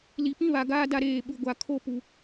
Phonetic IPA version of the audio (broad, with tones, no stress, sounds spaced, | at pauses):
l i˨ p ĩ˦ β a˨ ɡ aː˦ d a˦ ɾ eː˦˨ ɓ u˨ ɡʷ a˨ kʰ o˦ p u˨